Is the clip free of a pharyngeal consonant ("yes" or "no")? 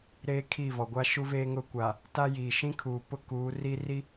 yes